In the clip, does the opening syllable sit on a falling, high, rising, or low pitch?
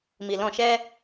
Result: low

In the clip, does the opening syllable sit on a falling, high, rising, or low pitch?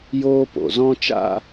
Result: high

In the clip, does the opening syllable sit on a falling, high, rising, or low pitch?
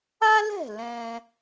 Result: high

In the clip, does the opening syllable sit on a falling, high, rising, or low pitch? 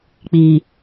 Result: low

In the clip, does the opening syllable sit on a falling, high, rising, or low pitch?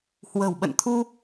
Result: low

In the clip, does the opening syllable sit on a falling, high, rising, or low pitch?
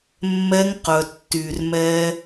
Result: high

